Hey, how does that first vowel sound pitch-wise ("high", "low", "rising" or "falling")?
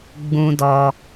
high